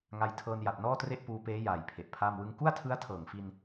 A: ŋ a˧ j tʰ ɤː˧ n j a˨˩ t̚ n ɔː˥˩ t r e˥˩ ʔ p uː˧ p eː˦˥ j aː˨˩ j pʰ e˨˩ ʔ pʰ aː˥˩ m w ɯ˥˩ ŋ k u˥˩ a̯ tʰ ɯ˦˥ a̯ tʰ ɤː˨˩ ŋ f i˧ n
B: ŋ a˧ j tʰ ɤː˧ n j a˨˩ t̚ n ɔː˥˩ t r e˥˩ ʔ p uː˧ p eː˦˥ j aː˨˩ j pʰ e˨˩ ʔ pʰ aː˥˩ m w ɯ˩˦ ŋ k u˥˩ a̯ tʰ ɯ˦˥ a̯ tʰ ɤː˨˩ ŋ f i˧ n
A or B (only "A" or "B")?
A